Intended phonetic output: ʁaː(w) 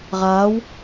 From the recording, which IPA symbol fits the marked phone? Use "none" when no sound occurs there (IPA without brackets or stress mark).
w